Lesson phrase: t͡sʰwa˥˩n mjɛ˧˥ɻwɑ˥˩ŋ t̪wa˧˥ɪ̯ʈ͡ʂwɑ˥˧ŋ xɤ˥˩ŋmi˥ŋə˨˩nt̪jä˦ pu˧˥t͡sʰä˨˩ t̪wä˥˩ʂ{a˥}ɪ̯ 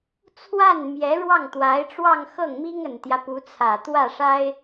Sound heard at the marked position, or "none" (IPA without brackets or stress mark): a˥